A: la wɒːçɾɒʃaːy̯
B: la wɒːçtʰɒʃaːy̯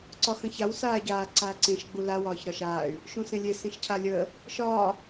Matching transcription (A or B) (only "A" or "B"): A